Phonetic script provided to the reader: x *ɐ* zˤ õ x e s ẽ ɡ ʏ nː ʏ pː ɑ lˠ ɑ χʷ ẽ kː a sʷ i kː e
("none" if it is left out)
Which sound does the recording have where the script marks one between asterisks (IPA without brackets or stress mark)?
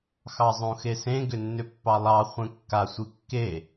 ɑ